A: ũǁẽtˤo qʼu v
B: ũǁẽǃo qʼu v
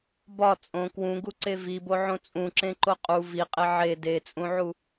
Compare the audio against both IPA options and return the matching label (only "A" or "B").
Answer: B